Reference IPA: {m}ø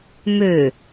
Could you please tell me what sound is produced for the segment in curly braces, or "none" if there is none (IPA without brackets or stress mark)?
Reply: m